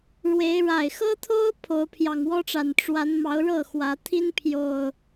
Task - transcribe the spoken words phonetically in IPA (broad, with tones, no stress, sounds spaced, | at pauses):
ɻ w e˨˦ ɪ̯ ɻ a˨˩ ɪ̯ x ɤ˦ t̪ʰ o˦ ʊ̯ pʰ o˨˦ ʊ̯ pʰ j ɑ˨˩ ŋ w ɔ˦ ʈ͡ʂ a˨˩ n ʈ͡ʂ w a˨˦ n m ɑ˨˦ ʊ̯ ɻ ɤ˥˨ x w ä˨˦ t̪ʰ i˦ n pʰ j o˨˩ ʊ̯